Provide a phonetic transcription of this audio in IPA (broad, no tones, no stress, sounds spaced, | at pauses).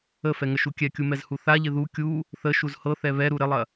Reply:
ə f ɛ ŋ ə ʃ u kʲ ɛ kʲ u m ɛ z h u θ a ʎ ɪ ð u kʲ u | θ ə ʃ u z h ɤ θ ɛ β ɛ ɾ u ɾ ɪ lˠ ɐ